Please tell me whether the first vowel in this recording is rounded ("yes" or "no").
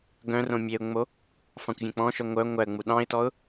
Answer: yes